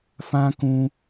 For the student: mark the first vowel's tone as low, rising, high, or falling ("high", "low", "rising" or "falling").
high